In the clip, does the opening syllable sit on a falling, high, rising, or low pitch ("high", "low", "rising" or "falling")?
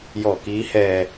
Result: low